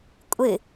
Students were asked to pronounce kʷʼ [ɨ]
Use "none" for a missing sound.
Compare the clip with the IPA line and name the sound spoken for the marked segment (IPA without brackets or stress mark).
ɨ